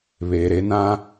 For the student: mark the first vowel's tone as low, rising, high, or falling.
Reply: low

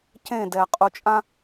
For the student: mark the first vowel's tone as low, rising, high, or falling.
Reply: falling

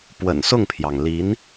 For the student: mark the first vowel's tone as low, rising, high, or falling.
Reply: low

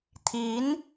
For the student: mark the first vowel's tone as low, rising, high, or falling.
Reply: rising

